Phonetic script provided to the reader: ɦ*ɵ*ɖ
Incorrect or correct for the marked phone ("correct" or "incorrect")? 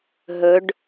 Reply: correct